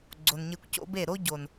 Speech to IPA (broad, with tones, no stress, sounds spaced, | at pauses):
ɡ͡ǀ o˨ n ɲ e˧ kʷ c o̰˦ b e˦˨ ɾ o˦ ɟ o˨ n